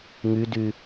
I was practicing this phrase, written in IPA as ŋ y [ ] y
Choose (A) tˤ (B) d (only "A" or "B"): B